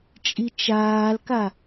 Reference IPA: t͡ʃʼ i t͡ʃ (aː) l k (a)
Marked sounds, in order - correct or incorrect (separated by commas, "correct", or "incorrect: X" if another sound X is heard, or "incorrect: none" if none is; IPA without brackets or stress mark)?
correct, correct